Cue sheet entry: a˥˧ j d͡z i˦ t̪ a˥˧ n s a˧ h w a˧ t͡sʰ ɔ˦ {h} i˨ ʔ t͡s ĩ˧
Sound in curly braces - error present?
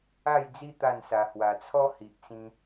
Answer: no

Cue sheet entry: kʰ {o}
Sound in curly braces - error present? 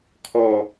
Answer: yes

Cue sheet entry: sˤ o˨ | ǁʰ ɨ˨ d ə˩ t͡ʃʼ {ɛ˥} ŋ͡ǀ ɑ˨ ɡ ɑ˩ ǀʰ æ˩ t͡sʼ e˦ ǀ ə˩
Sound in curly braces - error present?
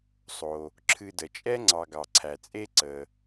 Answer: yes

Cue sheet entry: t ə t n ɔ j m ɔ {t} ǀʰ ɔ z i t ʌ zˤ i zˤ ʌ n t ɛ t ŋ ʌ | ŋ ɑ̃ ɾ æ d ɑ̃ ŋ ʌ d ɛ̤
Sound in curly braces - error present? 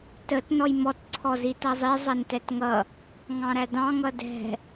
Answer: no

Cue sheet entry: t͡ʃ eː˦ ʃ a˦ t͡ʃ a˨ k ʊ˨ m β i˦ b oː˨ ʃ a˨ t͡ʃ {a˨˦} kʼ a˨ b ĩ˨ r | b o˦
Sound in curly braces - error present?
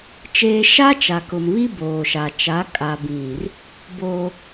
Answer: no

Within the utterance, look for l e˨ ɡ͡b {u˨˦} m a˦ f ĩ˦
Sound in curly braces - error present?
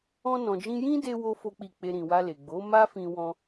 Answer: yes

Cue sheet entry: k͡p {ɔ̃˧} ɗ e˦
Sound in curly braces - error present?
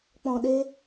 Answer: no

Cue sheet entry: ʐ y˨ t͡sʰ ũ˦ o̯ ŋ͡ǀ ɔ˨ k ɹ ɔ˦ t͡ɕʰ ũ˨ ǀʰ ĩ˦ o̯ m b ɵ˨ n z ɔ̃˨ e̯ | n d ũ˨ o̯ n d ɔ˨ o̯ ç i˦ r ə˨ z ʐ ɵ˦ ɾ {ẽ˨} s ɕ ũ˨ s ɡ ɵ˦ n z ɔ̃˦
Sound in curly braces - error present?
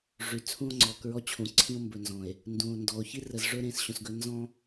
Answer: no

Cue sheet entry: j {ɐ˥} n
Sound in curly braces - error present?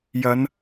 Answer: yes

